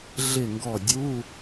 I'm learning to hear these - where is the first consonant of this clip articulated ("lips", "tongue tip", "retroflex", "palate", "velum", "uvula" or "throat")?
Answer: tongue tip